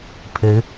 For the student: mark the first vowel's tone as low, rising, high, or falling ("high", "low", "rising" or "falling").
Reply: rising